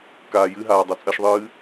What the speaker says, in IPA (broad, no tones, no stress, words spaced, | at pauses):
kaːjɨɦaː dˤot͡sʼɐʃðˤɨː